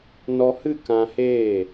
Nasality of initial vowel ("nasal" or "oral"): oral